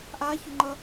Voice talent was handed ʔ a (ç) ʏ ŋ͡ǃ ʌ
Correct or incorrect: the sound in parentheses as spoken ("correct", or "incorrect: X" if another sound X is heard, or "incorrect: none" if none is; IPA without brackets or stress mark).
correct